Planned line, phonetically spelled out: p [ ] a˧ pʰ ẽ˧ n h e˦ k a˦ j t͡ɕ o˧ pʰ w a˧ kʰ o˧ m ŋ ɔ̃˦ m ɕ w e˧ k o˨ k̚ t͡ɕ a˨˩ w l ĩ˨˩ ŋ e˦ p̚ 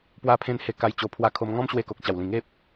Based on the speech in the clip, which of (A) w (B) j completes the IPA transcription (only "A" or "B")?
A